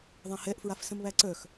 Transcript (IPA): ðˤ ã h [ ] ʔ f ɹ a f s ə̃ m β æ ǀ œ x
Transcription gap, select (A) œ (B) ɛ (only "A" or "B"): B